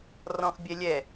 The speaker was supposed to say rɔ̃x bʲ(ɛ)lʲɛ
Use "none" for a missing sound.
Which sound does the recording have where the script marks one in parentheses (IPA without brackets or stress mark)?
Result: ɛ